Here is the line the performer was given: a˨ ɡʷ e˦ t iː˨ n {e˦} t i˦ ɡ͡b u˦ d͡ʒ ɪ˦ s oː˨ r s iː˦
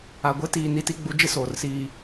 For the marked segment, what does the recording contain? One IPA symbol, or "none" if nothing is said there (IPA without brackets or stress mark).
i˦